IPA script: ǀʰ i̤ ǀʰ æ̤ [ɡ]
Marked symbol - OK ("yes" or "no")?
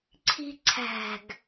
yes